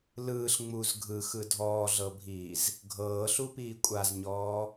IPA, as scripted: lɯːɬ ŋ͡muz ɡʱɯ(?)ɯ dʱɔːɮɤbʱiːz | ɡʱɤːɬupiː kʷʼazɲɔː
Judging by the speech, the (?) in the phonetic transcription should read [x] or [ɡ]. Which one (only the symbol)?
x